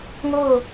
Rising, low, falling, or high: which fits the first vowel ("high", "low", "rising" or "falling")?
falling